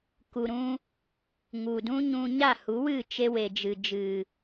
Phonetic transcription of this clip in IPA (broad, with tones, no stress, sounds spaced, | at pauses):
k u˨ ɾ ũ˧ | ŋ u˨ d ũ˦ ɲ ũ˧ ɲ a˦˨ h u˨˦ w ɨ˦˨ t͡ʃ e˧ w e˨ d͡ʒ ɨ˨ d͡ʒ ɨ˨